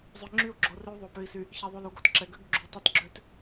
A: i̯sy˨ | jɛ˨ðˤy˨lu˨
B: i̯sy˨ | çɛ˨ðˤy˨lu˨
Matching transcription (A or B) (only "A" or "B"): B